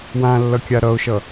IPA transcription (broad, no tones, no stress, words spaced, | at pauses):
wãlːʌkʲa ɾʌʊ̯ʃʌ